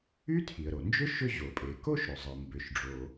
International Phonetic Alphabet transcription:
y˥ tʰ i˩ ə̯ ɾ o˩ n d͡ʒ ʏ˥ ʃ ʏ˥ ʑ o˩ pʼ e˩ k o˥ ʃ ɾ ʏ˩ zˤ ɘ˩ m b ʏ˩ ʃ ɖ͡ʐ o˩

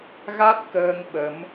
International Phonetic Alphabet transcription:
ɣ a˦˥ t̚ k əː˧ ŋ ɓ ə˨˦ m

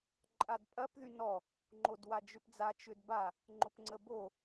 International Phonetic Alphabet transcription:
ǃʼ a d pʼ ɐ p ð y n ɔ | ŋ͡ǃ o d w a d͡ʒ ʏ p d͡z a t͡ʃ ʏ d b a | ŋ͡ǃ ʊ p ŋ͡ǀ ə b o

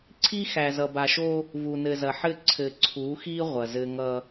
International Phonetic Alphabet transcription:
ǀʰ i˦ x æ˨ z ʌ˨ b a˨ ʃ o˦ | v u˨ n ɘ˨ z ɐ˨ ħ ɘ˦˨ ǀʰ ɘ˨ ǀʰ u˨˦ x i˦ ʁʷ ɐ˨ z ɘ˦ ŋ ʌ˦

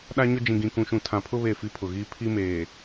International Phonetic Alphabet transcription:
ɗ a˦ ɲ ʊ˦ d͡ʒ ĩ˨ ɡ ĩ˨ k ũ˨ ʃ ũ˨ tʰ ã˨ pʰ ʊ˦ β e˦˨ f i˦ pʰ ʊ˨ ɣ iː˦ pʰ i˦ m eː˨

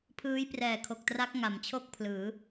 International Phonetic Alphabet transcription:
pʰ ɯː˦˥ j p r ɛː˨˩ kʰ o˨˩ k̚ t r a˦˥ k̚ ŋ a˩˦ m t͡ɕʰ o˥˩ k̚ pʰ l ɯː˩˦

